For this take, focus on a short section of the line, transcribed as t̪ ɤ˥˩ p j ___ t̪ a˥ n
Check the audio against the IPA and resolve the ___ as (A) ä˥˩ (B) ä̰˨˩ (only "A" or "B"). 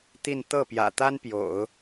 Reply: B